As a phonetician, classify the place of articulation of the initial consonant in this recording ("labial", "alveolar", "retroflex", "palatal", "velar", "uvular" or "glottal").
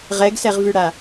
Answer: uvular